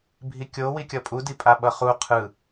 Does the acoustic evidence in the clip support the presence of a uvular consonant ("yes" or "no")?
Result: yes